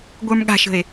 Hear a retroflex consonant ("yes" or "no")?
no